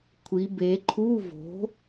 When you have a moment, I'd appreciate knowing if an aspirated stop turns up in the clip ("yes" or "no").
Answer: yes